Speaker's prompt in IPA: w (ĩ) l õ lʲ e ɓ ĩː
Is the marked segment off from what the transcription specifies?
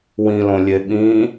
no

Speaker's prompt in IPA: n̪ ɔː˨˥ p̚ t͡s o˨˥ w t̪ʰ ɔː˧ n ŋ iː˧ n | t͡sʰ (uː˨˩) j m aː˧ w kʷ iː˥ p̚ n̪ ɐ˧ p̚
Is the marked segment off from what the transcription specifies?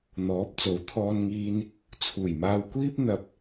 no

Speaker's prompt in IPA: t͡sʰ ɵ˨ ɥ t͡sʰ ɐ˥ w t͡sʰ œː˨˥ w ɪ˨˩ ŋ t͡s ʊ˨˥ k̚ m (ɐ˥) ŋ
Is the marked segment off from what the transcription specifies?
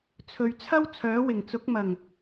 yes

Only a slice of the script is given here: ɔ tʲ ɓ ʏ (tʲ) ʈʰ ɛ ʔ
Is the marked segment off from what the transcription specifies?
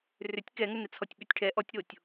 no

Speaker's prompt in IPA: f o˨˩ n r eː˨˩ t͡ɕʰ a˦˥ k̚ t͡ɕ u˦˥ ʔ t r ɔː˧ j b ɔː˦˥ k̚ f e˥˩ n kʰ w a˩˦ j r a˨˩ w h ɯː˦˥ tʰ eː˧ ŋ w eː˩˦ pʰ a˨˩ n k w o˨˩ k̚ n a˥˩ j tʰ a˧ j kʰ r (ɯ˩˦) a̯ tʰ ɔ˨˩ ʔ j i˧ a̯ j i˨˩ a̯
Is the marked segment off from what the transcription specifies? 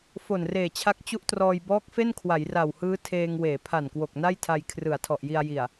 no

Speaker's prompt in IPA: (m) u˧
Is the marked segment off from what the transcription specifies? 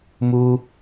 no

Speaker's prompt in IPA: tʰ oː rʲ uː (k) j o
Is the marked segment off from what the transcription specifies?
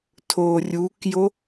no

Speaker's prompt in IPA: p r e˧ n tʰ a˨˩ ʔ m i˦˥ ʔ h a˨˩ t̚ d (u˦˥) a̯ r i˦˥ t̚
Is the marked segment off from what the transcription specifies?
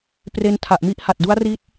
no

